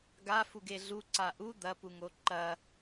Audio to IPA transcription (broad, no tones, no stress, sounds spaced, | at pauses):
ɡ a f u ɡ e ɮ u ǀ a ʔ u d̪ ɐ p u ŋ o ǃ ɐ